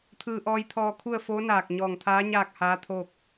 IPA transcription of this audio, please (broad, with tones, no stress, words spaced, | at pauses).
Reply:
t̪ʰɯː˧ʔɔː˧jt̪ʰɔː˧kʰu˥˨ə̯ foː˧˥ naː˧˩k̚ ɲɔː˧˩ŋt̪ʰaː˧˥ ɲaː˥˨k̚haː˧˥ t̪ʰoː˥˨k̚